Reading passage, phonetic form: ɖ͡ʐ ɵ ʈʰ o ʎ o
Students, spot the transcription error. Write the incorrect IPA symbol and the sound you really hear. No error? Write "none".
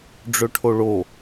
ʎ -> ɭ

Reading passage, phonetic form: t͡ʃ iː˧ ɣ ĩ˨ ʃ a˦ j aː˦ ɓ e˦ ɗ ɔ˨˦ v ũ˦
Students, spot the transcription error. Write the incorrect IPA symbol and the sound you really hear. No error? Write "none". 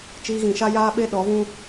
none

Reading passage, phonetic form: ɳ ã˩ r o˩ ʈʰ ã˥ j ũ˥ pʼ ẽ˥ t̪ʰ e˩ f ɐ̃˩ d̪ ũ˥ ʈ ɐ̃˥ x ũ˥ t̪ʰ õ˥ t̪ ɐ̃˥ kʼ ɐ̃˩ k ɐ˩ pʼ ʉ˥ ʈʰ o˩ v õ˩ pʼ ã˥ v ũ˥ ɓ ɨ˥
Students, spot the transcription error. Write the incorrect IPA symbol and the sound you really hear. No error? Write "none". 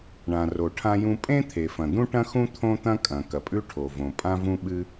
none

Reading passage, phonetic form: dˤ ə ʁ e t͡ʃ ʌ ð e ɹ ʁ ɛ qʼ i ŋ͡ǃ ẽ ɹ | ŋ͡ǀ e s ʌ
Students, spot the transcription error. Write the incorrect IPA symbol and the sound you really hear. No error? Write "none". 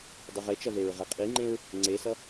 none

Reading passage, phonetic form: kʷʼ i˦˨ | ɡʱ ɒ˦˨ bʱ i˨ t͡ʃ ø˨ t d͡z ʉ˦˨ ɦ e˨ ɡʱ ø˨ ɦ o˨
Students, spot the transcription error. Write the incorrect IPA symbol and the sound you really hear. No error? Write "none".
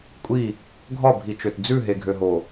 none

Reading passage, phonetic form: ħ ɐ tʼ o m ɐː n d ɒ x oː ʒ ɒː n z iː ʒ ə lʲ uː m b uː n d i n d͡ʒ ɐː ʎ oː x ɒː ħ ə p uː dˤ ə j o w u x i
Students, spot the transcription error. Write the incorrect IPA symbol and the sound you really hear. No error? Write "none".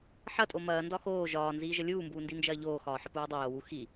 none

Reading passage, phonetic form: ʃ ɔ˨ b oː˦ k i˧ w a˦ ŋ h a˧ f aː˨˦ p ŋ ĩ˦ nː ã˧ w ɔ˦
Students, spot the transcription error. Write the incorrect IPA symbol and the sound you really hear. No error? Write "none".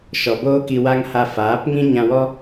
nː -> ɲ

